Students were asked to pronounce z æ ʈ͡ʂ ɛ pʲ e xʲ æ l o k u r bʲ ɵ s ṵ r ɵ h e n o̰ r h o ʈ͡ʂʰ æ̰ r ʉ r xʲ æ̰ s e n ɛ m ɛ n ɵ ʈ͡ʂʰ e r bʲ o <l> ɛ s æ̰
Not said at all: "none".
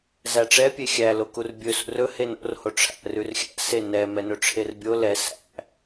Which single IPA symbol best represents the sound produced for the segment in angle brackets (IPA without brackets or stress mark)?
l